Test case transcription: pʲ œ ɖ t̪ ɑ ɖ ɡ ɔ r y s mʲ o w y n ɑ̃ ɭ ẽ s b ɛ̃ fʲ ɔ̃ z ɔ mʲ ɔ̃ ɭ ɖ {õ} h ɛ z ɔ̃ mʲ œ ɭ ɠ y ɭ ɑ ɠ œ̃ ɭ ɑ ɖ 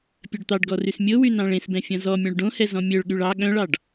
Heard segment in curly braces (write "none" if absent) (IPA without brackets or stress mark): õ